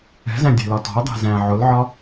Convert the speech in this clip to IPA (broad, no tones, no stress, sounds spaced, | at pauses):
ɛ̤ z æ̃ dʲ ɛ̤ l ɒ t ɔ̤ ɐ̯ dˤ æ̤ z æ̃ ʕ ʊ l ʕ ɒ